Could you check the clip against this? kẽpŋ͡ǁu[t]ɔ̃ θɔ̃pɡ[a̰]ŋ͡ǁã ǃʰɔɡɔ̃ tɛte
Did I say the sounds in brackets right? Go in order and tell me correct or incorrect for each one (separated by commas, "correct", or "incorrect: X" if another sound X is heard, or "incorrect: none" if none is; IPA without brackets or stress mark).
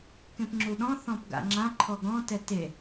incorrect: ɗ, correct